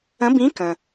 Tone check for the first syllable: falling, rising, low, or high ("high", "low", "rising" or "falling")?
rising